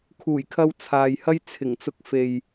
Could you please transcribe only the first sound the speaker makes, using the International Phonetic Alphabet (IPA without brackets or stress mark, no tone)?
kʰ